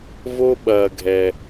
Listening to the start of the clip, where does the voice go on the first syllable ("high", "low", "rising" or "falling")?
high